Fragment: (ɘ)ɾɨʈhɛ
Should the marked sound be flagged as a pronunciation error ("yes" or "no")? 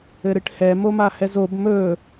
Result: no